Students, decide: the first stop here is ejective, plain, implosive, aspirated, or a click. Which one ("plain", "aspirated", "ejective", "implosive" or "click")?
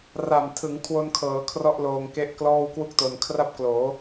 aspirated